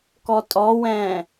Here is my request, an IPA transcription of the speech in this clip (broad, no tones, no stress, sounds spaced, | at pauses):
k ɔ tʼ ɔ w ɛ̃ː